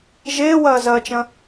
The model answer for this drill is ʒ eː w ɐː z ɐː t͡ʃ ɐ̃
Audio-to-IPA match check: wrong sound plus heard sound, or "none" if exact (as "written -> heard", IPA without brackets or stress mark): none